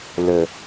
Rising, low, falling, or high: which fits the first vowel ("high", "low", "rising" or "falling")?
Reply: low